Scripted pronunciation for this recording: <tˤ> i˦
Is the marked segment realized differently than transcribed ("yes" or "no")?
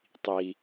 no